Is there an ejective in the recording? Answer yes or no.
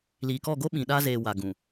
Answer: no